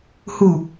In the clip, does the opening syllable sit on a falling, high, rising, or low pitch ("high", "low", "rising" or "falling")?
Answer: low